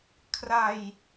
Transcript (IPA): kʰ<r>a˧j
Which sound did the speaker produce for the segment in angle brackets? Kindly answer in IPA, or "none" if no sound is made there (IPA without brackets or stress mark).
r